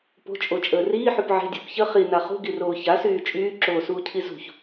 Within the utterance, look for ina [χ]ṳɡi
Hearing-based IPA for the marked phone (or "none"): χ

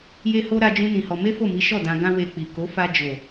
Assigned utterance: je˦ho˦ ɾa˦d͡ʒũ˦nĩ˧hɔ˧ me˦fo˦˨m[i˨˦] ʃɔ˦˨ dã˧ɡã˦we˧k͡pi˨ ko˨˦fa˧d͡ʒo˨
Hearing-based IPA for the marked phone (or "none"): i˨˦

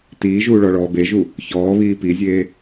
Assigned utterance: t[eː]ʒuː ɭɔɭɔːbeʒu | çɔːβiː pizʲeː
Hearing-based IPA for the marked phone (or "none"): iː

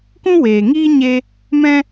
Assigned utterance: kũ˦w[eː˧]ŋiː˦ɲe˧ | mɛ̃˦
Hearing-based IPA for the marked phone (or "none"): eː˨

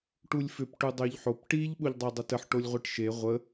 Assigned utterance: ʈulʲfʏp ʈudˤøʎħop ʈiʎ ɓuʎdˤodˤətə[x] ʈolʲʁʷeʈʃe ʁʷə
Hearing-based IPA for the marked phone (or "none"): ħ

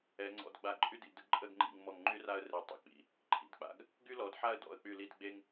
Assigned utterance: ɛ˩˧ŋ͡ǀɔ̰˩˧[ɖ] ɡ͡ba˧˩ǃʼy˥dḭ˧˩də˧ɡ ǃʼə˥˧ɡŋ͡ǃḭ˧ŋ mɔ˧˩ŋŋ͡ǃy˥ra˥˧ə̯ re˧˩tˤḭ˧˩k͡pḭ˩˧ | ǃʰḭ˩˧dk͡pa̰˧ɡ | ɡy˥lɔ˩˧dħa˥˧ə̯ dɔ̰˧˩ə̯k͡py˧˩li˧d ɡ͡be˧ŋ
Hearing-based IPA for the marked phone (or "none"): d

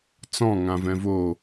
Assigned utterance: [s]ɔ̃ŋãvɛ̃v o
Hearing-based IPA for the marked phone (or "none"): t͡s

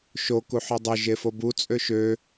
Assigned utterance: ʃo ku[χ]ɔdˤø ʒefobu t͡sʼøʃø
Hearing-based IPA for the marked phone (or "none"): ħ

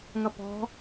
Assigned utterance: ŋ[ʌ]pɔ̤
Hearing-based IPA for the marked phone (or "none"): ʌ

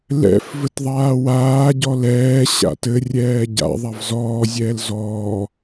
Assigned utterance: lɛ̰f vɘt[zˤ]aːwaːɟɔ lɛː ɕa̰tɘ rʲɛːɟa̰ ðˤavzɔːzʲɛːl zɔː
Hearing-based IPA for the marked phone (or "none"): ðˤ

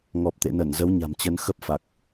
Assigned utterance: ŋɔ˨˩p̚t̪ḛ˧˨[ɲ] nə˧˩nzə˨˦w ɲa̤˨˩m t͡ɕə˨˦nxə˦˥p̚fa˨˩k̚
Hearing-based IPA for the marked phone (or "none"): none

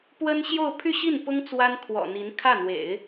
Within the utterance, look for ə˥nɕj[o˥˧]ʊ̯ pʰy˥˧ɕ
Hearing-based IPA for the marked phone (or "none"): o˥˧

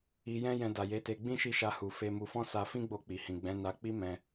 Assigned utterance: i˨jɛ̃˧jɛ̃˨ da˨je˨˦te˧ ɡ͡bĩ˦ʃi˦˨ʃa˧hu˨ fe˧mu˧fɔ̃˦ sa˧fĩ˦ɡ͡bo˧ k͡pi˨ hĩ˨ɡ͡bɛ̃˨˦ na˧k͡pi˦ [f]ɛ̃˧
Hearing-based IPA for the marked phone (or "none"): m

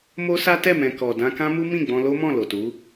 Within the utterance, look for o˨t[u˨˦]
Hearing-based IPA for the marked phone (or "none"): u˨˦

